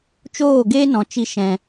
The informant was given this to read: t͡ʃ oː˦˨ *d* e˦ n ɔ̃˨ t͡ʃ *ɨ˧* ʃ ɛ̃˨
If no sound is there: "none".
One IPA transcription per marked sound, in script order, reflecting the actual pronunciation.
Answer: ɡ, i˧

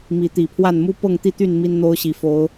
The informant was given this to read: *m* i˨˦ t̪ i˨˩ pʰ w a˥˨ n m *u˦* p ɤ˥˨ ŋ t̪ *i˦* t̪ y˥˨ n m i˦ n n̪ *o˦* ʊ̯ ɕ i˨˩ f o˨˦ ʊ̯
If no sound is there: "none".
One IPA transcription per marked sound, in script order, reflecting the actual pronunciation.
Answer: m, u˦, i˥˨, o˦

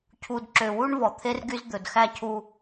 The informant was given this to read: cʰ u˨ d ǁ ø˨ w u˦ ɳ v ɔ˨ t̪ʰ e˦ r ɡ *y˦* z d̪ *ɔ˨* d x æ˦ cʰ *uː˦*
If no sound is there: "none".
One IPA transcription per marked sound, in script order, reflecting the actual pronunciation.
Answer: y˦, ɵ˨, u˦

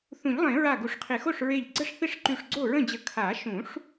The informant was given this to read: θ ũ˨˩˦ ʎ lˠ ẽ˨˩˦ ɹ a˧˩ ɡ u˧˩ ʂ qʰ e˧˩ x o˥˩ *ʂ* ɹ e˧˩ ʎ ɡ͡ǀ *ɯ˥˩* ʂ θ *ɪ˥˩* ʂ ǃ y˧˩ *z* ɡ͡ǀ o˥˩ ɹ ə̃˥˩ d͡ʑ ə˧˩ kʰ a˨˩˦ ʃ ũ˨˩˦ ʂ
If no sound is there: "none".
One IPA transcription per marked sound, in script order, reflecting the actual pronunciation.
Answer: ʂ, ə˥˩, ɪ˥˩, ʂ

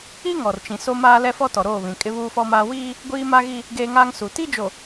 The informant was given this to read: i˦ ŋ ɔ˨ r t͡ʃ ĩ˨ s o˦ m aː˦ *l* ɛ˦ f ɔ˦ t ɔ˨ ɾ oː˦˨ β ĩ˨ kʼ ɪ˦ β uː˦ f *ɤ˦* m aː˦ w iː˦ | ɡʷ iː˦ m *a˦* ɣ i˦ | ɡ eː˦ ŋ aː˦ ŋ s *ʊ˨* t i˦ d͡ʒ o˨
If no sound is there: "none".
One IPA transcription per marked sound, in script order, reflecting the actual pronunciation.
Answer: l, ɔ˦, a˦, u˨

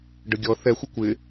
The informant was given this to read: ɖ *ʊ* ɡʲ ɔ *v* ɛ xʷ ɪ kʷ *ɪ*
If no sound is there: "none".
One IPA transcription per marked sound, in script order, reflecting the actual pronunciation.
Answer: ə, θ, ɪ

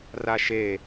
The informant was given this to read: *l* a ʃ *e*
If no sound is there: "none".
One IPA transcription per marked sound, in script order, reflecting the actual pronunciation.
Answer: r, e

